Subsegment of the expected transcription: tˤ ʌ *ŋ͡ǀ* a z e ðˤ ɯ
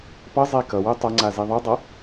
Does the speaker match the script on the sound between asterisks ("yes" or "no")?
yes